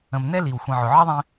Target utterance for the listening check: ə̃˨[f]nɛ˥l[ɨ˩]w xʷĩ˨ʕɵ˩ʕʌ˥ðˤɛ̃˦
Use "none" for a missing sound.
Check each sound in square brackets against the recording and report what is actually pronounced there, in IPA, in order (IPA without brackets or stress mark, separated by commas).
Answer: m, i˩